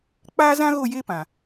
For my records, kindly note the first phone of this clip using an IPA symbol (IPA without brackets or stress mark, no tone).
k͡p